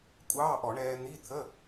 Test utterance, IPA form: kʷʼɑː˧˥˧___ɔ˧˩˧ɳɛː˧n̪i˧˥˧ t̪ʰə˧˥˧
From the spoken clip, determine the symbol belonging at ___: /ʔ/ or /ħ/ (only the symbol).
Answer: ʔ